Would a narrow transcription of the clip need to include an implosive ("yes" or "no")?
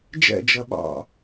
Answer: yes